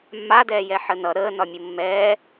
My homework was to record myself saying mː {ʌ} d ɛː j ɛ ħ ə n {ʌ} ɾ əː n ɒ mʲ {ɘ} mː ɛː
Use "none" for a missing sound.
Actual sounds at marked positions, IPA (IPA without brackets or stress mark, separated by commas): a, ʌ, ɘ